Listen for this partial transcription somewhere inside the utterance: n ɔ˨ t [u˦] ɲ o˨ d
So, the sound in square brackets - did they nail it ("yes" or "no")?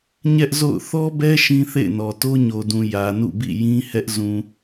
no